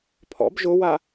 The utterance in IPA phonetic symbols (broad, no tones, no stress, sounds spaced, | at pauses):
pʰ ɔ̰ b ʒ ʊ w a